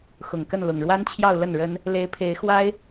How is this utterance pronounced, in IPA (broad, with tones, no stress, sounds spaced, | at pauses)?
x ʊ˨˩ ŋ k ə˥˩ n l ʊ˨˩ ŋ ɻ w a˥ n t͡ɕʰ j ɑ˥˧ ʊ̯ l ə˥˩ n ɻ ə˥ n | l e˧˥ ɪ̯ pʰ e˧˥ ɪ̯ x w a˥ ɪ̯